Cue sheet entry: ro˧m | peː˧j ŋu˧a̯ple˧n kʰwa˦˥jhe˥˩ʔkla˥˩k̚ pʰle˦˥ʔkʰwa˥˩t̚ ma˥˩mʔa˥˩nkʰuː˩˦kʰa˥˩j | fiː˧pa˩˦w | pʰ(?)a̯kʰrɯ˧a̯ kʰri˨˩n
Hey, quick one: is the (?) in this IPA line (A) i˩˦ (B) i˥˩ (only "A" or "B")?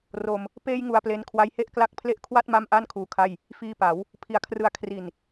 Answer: A